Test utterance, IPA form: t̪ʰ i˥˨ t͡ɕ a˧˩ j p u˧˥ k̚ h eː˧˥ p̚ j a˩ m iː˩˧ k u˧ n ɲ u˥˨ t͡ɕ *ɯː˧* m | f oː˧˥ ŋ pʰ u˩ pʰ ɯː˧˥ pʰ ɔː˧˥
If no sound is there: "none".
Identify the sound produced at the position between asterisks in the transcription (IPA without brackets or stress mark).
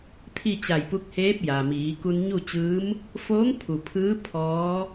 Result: ɯː˧˥